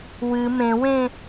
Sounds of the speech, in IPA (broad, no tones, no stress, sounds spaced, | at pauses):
w ɨ m ẽ w ẽ